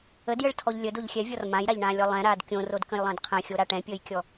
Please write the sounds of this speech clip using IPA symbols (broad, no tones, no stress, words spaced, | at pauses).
ədjəɭtʰɔʎ lʲədoʎ xʲɛvʲɔr mãjɾaʎɳãːlʲɔ lˠɛ̃ɾaːd kʲõrodkə̃jlˠə̃ːd qʰɛ̃xʲoɾa ʈɛ̃pʲəːjkʲɔ